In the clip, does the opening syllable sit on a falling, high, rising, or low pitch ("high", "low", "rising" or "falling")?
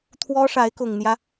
high